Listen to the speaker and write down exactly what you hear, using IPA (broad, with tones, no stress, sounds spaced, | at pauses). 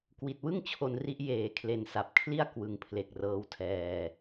k w i˨˩ t̚ w ɯ˥˩ ŋ t͡ɕʰ o˧ n r i˦˥ ʔ j eː˨˩ kʰ l e˨˩ n s a˨˩ p̚ kʰ l i˥˩ a̯ k w ɯ˨˩ ŋ pʰ l e˨˩ k̚ r ɤː˦˥ w tʰ ɛː˧